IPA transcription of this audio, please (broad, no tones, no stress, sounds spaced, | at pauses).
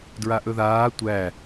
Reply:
d ɹ a ʔ ɵ ð aː tʷ æ